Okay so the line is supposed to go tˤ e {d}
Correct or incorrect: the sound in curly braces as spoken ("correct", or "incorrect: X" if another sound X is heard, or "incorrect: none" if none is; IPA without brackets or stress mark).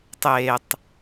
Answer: incorrect: tˤ